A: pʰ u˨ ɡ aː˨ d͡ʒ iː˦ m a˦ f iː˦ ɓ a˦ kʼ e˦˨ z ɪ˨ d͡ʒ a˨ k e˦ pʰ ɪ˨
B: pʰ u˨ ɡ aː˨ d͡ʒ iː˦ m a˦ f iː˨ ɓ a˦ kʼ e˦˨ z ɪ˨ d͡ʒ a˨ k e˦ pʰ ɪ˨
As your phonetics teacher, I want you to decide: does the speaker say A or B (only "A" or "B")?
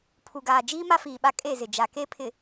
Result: B